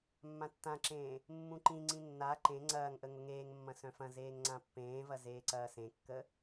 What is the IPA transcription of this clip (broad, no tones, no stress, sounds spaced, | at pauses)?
mː ã tː ã ǁ ẽː | mː ũ ǃ ĩ ŋ͡ǀ ĩ nː a ǃ ẽ ŋ͡ǀ ɐː ŋ ʔ ə ŋ ʊ ŋ eː ŋ mː ɐ̃ s œ̃ f ɐ̃ z eː ŋ ŋ͡ǀ ã pː ẽː v ɐ z eː ǀ ɐː s ẽ kː ə